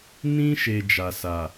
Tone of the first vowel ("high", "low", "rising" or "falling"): high